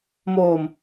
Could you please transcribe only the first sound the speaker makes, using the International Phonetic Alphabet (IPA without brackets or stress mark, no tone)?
m